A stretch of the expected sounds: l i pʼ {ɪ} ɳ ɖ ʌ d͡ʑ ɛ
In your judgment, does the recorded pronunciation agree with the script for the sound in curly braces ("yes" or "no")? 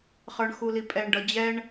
no